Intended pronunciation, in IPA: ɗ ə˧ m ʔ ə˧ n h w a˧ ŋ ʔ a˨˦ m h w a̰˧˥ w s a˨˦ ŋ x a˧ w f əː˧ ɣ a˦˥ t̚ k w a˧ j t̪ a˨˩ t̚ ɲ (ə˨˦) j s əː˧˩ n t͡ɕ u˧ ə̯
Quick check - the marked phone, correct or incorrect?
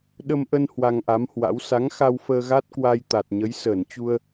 correct